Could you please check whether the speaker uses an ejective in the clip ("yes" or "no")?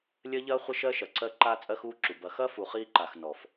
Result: yes